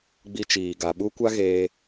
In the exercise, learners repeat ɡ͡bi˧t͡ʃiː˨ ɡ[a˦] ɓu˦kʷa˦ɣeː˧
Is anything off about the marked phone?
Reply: yes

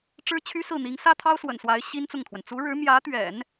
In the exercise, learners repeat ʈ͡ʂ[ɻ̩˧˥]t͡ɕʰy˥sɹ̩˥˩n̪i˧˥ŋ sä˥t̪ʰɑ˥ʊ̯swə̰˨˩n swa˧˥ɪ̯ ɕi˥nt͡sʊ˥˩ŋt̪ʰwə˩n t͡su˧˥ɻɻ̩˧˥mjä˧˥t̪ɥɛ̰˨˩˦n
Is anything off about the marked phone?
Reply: yes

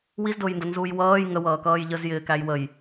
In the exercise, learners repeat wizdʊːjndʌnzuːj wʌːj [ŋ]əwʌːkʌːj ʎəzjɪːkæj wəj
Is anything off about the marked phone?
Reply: no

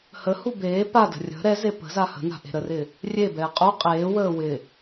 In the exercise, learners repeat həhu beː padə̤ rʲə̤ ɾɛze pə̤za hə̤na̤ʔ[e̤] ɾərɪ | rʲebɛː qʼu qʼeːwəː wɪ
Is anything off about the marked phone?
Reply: no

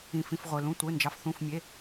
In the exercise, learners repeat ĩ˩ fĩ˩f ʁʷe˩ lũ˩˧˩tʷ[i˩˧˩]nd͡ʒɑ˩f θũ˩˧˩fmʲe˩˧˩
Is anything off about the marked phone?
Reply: yes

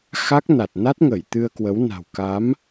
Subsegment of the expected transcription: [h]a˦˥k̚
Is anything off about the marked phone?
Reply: yes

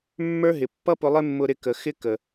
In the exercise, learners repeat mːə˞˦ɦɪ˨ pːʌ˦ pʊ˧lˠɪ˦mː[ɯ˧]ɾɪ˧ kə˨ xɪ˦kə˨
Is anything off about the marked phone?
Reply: yes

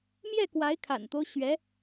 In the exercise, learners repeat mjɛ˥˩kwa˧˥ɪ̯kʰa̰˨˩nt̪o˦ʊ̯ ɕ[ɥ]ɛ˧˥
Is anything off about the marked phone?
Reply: no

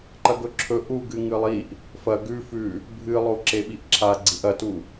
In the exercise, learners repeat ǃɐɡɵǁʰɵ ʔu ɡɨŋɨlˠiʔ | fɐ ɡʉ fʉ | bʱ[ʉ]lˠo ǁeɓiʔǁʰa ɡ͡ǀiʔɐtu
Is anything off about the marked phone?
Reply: yes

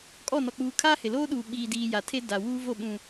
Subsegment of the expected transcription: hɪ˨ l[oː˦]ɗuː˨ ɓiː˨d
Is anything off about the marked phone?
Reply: no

